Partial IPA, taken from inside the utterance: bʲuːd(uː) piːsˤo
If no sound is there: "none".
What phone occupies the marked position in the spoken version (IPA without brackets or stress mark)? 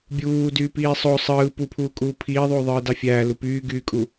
yː